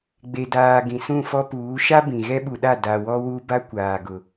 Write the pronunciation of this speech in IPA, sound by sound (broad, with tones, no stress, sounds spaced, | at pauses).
ɡ͡b e˨ d aː˨ ɡ ĩ˨ s ũ˦˨ f ɔ˦ p uː˨˦ ʃ a˦ b ĩ˨ ɣ ɛ˦ ɓ u˨ ɗ a˦˨ d a˨ w ɔ˦ w u˦ b a˦ kʷ aː˨ ɡ ʊ˨